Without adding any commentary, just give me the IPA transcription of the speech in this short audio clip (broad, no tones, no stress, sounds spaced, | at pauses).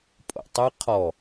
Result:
pʼ o̰ tˤ ɨ qʰ ɔ